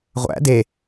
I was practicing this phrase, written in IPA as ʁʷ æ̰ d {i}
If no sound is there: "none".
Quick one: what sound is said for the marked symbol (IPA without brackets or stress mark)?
e